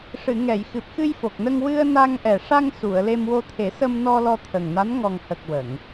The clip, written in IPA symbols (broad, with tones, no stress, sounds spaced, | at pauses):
ʂ ɨ˨˩˨ ŋ ɛ˨˩˨ j x ɨ˨˩ p̚ x ɨ˧ j f o˨˩ k̚ n ə˧ ŋ w ɨ˧ ə̯ n a˧ ŋ ʔ ɛ˨˩ ʂ a˧ ŋ s u˨˩˨ ə̯ l e˧ m w o˧ t̪ʰ e˨˩˦ s ə˧ m n ɔ˧ l ɔ˧ t̪ʰ ə˨˩ ŋ n a˧˥ n ŋ ɔ˨˩ ŋ h ə˨˩ k̚ w ə˨˩˨ ŋ